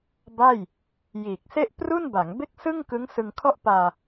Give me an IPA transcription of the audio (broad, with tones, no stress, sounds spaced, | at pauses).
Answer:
b a˥˩ j | j iː˨˩ k̚ s e˥˩ ʔ p r u˥˩ n b a˩˦ ŋ b e˥˩ k̚ s ɯ˥˩ ŋ k ɯ˦˥ ŋ s ɯ˧ ŋ kʰ ɔ˥˩ ʔ p aː˧